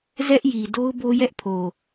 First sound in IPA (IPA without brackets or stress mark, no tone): z